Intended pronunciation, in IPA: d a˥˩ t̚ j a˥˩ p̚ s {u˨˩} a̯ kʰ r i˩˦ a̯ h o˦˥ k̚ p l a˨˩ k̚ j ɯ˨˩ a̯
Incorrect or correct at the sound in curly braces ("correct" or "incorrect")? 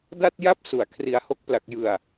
correct